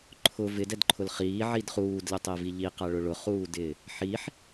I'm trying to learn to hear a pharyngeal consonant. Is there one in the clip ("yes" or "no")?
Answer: yes